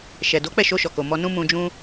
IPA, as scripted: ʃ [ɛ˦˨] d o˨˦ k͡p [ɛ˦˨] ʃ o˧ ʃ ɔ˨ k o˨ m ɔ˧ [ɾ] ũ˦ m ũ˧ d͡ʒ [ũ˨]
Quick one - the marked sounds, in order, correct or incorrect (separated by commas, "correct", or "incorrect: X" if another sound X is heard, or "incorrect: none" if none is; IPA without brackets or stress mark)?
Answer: incorrect: ɛ˨, correct, incorrect: n, incorrect: ũ˦